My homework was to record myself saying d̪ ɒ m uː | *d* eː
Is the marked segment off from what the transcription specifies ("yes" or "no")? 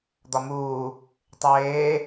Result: yes